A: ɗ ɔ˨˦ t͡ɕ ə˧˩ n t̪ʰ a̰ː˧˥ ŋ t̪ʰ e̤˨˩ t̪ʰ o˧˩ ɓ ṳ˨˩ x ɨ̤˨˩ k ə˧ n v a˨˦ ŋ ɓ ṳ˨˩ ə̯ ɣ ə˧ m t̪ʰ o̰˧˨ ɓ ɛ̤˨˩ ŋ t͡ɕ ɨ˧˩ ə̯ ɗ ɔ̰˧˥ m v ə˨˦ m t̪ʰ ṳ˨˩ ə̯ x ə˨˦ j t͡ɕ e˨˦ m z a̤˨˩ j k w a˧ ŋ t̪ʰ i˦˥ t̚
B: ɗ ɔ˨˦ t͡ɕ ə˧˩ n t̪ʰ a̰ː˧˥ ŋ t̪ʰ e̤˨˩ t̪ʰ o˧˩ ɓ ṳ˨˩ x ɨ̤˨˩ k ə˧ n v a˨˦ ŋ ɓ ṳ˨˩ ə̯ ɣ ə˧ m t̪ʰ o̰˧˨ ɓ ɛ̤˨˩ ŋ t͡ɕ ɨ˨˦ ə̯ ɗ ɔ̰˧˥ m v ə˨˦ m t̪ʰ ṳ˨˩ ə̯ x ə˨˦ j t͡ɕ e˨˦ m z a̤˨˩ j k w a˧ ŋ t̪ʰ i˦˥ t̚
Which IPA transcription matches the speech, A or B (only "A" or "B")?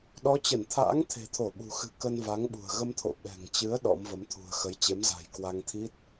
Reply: B